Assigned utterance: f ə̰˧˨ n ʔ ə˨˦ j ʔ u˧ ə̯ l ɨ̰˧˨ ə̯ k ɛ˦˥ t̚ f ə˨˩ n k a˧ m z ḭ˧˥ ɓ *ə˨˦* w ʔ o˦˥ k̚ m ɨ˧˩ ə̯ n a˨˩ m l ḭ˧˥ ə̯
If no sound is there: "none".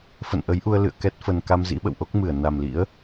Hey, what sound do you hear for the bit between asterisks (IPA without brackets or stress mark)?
ə̰˧˨